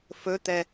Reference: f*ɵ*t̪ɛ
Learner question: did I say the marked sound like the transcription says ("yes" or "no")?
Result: yes